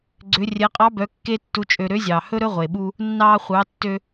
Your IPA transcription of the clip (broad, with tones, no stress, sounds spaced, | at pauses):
ɡ͡ǀ ø˩˧ rʲ ɛ˩˧ qʼ ɑ˧˥ b œ˩˧ kː e˥ tː u˧˥ t͡ʃʼ ø˧ ɾ ø˧˥ zʲ ɑː˩ h ɵ˥ ɾ ɵ˥ ʁʷ e˩ ɓ u˧ | nː ɑː˧ χʷ ɑ˩˧ tː ø˧